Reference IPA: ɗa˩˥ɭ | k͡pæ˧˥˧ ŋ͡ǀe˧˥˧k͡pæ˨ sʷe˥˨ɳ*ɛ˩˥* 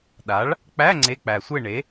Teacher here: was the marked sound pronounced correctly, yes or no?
no